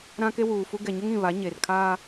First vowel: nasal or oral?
nasal